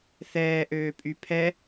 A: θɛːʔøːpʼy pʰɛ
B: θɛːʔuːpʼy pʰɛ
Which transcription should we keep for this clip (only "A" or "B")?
A